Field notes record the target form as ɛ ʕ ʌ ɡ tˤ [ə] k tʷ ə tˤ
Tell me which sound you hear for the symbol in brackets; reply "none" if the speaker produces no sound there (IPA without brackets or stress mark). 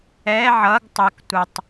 ə